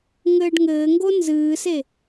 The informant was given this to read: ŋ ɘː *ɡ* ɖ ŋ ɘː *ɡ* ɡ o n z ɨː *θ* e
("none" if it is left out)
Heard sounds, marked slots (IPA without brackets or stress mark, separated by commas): none, ŋ, s